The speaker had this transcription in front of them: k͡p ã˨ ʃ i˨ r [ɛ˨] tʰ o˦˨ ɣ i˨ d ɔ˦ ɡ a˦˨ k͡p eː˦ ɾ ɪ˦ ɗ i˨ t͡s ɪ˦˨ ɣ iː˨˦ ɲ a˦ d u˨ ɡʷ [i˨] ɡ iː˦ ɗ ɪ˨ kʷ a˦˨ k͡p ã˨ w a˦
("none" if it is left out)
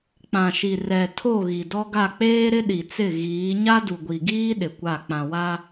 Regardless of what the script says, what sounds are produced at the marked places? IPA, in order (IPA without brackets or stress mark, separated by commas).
ɛ˨, i˨